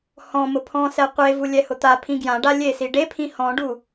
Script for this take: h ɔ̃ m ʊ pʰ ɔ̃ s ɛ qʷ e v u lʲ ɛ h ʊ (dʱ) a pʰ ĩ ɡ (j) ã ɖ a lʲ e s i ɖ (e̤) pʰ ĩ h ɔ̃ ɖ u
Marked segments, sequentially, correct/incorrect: incorrect: t̪, correct, incorrect: e

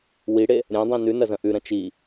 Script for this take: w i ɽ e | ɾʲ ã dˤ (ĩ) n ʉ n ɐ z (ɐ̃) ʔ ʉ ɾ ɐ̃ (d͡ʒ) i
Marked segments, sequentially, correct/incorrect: correct, correct, incorrect: t͡ʃ

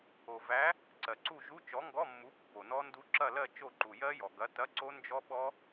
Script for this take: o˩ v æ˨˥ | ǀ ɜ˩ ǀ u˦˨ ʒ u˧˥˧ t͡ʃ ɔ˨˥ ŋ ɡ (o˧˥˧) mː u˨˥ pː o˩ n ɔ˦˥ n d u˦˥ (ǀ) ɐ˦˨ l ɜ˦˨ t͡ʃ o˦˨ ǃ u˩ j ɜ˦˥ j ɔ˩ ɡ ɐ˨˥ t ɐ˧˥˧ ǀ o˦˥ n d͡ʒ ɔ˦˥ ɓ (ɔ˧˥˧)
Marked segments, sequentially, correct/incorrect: incorrect: ɔ˧˥˧, incorrect: ǁ, incorrect: ɔ˦˥

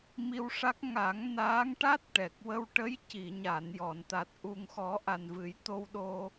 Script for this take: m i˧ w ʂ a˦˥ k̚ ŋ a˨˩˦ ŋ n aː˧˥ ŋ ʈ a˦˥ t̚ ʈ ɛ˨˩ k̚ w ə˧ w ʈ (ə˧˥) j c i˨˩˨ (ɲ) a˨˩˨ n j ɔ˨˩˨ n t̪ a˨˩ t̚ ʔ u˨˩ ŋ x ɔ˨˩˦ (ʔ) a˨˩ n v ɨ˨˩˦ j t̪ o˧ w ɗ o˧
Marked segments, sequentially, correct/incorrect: correct, correct, correct

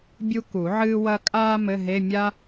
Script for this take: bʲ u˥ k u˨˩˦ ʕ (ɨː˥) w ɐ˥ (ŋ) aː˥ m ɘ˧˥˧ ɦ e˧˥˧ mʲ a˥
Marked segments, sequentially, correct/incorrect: correct, incorrect: kʼ

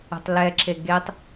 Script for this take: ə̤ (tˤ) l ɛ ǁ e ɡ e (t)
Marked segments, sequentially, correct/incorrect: correct, incorrect: tˤ

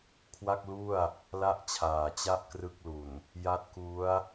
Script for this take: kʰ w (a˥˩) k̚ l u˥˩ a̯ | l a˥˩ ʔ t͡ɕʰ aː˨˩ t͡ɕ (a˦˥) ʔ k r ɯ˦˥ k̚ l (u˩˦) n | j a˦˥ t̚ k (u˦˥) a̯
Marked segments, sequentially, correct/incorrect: correct, incorrect: a˥˩, incorrect: u˨˩, correct

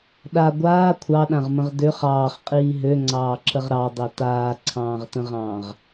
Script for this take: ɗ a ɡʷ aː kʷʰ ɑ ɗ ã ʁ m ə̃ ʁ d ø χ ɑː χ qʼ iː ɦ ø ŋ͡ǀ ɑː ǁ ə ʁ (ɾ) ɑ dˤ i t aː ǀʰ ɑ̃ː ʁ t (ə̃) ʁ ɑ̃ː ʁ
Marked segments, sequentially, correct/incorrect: correct, correct

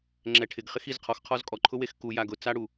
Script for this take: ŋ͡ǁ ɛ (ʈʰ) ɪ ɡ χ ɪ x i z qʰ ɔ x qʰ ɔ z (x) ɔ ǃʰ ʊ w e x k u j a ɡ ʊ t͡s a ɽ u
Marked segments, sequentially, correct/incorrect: correct, incorrect: kʼ

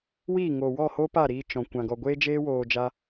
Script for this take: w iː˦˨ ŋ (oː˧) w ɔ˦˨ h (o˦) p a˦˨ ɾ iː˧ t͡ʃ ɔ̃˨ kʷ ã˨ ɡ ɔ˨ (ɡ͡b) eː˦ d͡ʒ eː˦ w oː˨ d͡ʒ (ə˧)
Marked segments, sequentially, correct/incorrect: incorrect: oː˨, correct, incorrect: ɡʷ, incorrect: a˧

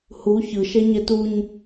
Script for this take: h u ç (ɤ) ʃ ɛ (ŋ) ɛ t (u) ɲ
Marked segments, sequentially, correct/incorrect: incorrect: ɯ, incorrect: ɲ, correct

